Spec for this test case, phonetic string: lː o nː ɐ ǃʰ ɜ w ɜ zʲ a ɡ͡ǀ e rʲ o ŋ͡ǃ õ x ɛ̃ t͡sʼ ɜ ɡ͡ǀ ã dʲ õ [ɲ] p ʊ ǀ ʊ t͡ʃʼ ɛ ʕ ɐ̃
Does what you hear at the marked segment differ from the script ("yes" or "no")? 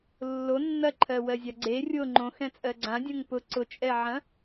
yes